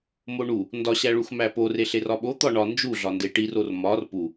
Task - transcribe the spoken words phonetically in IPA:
moɳu | ndɒɕæɭux mæpor eɬerɒɓo t̪ɒɳɒ nd͡ʒuɮɒ ndeʈiror mɒr pu

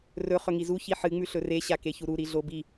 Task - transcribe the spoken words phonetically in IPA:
rɵ χɵŋizu çiħɨ ŋ͡mʉɬɵre ɕakeçuɾu ɾiɮobi

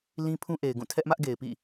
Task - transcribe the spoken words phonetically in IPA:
lĩ˦pʰũ˦ ʔe˨ɪ̯ɡũ˦˨ tʰɛ˦ʔmä˦ʔɡe˨ɪ̯ pḭ˦˨

